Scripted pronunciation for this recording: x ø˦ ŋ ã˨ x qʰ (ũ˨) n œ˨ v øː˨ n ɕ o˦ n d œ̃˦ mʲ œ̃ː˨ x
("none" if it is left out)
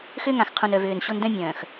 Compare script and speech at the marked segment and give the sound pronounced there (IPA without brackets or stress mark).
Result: ũ˨